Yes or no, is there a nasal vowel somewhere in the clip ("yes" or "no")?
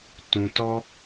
yes